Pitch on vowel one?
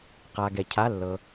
low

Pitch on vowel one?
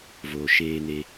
low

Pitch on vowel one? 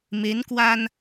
rising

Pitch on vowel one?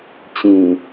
low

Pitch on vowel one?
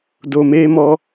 low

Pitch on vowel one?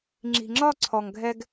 low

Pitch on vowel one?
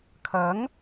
rising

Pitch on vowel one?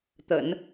low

